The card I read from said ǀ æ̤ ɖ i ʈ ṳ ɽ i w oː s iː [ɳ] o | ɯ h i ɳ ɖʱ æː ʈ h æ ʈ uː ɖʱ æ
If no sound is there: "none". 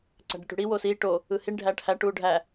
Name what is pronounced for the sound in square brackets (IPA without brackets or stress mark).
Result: ʈ